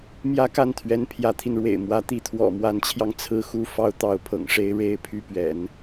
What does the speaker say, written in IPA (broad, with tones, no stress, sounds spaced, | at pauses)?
m j ä˥ k a˥˩ n t̪ʰ ɥ ɛ˧˥ n pʰ j ä˧˥ t̪ʰ i˧ n ɻ w ḛ˨˩ ɪ̯ m w ä˧˥ t̪ i˧˥ t̪ʰ w ɔ̰˨˩ m w a˧˥ n t͡ɕʰ j ɑ˧ ŋ t͡sʰ ɹ̩˥ x u˥ f ɑ˥ ʊ̯ t̪ ɑ˧˥ ʊ̯ pʰ ɤ̰˨˩ ŋ ʂ e˥ ɪ̯ ɻ e˥ ɪ̯ pʰ y˥˩ p ɥ ɛ̰˨˩˦ n